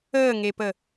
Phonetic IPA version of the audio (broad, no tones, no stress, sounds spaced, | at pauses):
əː ŋ e p ə